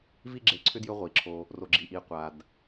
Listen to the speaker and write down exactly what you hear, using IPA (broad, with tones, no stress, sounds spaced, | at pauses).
v i˦ ɡ͡ǁ e˨ ǀʰ ʏ˥ d j ʏ˦ ʁʷ i˩ ǁʰ o˨ | r o˨ ɡ͡ǁ i˨ ʔ i˨ qʷ a˩ d